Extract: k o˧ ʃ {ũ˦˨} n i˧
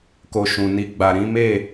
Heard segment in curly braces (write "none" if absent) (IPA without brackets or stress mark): ũ˨